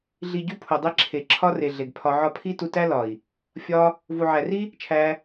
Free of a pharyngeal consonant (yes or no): no